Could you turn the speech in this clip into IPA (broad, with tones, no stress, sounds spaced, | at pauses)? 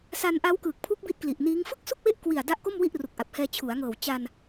s a˧ n ʔ a˦˥ w k ɯː˨˩ k̚ pʰ u˦˥ k̚ b i˦˥ t̚ k l i˨˩ ʔ n iː˦˥ ŋ f ɯ˥˩ k̚ s u˥˩ k̚ w e˦˥ ʔ k w i˨˩ a̯ d a˦˥ ʔ k o˥˩ m w i˥˩ ʔ r u˨˩ k̚ ʔ a˨˩ p̚ h ɛː˧ t͡ɕʰ u˩˦ a̯ ŋ ɤː˨˩ w t͡ɕ a˧ n